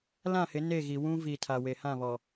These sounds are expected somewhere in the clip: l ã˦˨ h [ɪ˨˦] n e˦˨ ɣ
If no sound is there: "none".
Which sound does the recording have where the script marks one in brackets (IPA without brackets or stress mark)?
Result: ɪ˨˦